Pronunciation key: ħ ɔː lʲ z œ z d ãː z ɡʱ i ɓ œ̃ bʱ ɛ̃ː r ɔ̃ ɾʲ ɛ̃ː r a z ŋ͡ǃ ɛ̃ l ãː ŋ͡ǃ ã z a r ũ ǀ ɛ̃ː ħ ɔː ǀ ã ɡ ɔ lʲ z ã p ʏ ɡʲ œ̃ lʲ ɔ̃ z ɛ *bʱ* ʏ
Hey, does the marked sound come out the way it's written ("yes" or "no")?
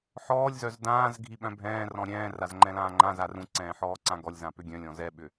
no